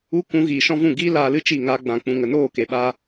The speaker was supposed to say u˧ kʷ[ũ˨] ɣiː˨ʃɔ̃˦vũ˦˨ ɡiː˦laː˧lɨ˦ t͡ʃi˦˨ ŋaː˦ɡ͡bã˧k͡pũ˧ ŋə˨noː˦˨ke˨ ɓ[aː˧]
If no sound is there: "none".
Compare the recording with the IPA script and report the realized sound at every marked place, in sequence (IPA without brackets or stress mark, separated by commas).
ũ˨˦, aː˧